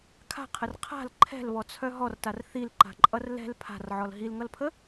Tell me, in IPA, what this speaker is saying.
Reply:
kʰ a̤ qʰ ə r qʰ a̤ l ǃʰ ɛ̤ l β ɔ t͡sʰ œ ɦ ɔ r t a r θ i l ǃ a̤ ǃʼ ʌ r l ɛ̤ l pʰ a̤ r ʕ ɔ l ɦ i l ŋ ʌ l pʰ ə

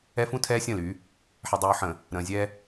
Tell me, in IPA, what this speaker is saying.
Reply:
ɛ˦ f ũ˦ tʰ ɛː˦ sʲ ə̃ː˦˨ l y˨˦ | ħ ɛ˨ dˤ uː˨ ħ ə̃˨ | ɾ ə̃ː˨ zʲ ɛ˦

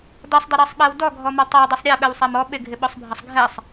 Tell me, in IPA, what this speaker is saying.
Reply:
d ʌ sˤ dˤ ɪ ɾ ɑ sˤ ɓ æ w d ɔ ɡʱ ɔ m ɑ tˤ ɑ dˤ ʌ sˤ ɾʲ æ ɓ ɛ w sˤ æ m ɔ ɓ ɪ ɡʱ ɪ ɓ ɔ sˤ bʱ ʌ sˤ ɡʱ ɛ sˤ

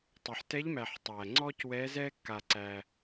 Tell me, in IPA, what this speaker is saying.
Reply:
tˤ ə˞˩ ħ t ɛ˨˦ ʎ m æ˩ ħ tˤ æː˩ ŋ͡ǀ ɔː˦ c w ɛː˨˦ z ɛː˦ kː a˩ ǀ æ˩

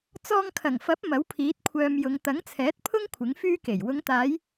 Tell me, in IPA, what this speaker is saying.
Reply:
t͡s ɔː˧ ŋ kʰ ɐ˨˩ ŋ f ɐ˨˥ p̚ m ɐ˨˥ w pʰ iː˨˥ t̚ kʷʰ œː˧ m j ʊ˨˧ ŋ t̪ ɐ˨˥ ŋ t͡sʰ ɛː˨˥ t̚ pʰ ʊ˥ ŋ kʷʰ ɪ˨˥ ŋ f yː˥ k e˨˩ j w ʊ˨˧ ŋ t̪ aː˨˧ j

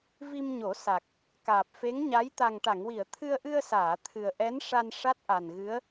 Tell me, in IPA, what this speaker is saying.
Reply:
v i˧ m ɲ o˨˩˦ s a˨˩ k̚ | k aː˨˩ p̚ f e˧˥ ŋ ɲ a˧˥ j t̪ a˨˩ ŋ ʈ a˨˩˨ ŋ w i˨˩˨ ə̯ t̪ʰ ɨ˧ ə̯ ʔ ɨ˧ ə̯ s aː˨˩˨ t̪ʰ ɨ˨˩ ə̯ ʔ ɛ˧˥ n ʂ a˧ n ʂ a˦˥ t̚ ʔ a˨˩ n ɣ ɨ˧˥ ə̯

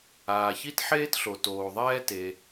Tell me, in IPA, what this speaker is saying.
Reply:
aː˩ ç i˥ t ħ eː˥ t ɬ o˩ t oː˩ ðˤ ɛː˥ t e˩

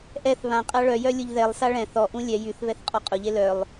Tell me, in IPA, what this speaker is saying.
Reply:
ʔ ɛ θ β ã qʼ a ɭ œ j œ lʲ ʊ ʎ ð ɛ lˠ s a ɭ ɛ̃ θ ɔ ʔ ũ lʲ ɛ j y θ β ɛ θ qʼ ɔ qʼ ʊ ʎ e l œ lˠ

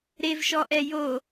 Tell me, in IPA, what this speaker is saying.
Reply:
ɾ e v ʃ ɔ ʔ ɛ j o

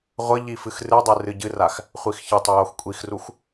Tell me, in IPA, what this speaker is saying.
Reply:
ʁʷ ə ʎ i f ɨ x r ɨ dˤ ɨ r ɨ ɟ ɨ r a x | χʷ i x ç ə tˤ ə j o x kʷʼ i x r u x

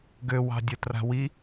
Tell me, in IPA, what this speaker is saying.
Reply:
ɡ ø w ɑ̤ dʲ ə t r a̤ w i

